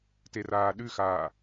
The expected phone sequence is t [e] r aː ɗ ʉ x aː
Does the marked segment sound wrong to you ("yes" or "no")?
no